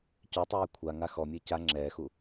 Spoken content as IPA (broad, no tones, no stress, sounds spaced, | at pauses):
c œ tˤ ɛː kʷʰ a ŋ a x ɔ mʲ əː c a ŋ͡ǁ ɛː x u